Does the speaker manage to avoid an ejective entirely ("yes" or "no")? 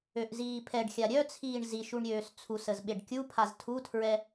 yes